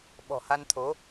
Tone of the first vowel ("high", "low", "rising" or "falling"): low